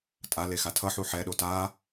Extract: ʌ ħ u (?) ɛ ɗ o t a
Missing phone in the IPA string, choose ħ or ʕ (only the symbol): ħ